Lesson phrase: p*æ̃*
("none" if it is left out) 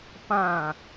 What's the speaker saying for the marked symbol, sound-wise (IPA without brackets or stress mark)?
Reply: ã